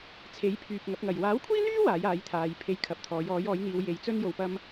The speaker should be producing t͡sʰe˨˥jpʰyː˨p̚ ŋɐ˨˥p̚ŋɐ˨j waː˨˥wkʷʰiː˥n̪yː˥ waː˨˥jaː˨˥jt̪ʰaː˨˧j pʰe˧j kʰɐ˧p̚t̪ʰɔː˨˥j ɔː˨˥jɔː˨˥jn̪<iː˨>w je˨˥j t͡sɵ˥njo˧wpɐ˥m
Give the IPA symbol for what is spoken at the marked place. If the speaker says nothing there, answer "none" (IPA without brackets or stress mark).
iː˨˧